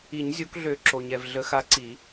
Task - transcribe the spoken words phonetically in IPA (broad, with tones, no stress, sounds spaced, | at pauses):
i˨˩˦ ɲ zʲ o˨˦ k ɮ ø˨˩˦ ǁ o˩ ɲ ɛ˩ v ɮ ə˨˩˦ x a˨˦ ǀ i˨˩˦